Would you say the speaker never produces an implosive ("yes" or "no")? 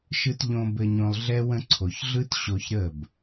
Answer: yes